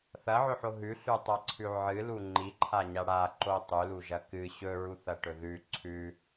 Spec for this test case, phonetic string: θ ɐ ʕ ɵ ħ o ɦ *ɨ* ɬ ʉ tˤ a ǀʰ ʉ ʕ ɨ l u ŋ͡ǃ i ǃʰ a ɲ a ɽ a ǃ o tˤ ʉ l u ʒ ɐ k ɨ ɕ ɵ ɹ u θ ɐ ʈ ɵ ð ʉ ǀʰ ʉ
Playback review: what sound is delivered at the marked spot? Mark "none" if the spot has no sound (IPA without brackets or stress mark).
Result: ʉ